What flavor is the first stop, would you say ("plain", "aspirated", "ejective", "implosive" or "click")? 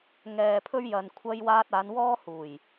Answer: aspirated